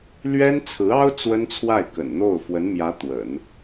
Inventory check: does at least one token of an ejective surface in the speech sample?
no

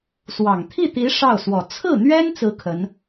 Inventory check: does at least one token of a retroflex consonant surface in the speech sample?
yes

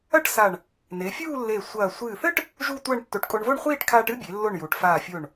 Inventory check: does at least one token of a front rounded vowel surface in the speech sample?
no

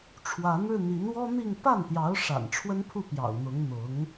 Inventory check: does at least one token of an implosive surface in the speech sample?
no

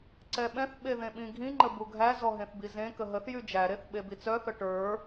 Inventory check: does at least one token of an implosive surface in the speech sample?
yes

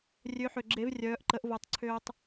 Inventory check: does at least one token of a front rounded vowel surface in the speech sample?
yes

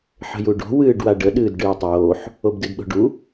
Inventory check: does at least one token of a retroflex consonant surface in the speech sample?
yes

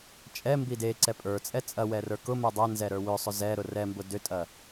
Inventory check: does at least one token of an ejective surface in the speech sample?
yes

